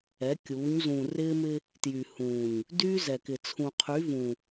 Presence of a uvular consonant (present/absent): present